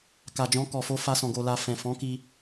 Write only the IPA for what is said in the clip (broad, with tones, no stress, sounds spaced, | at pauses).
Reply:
k a˨ d͡ʒ ɔ̃˧ k ɔ˨ f o˧ f a˧ s ɔ̃˨ ɡ o˨ l a˨ f ɛ̃˨ f ɔ̃˨˦ k i˧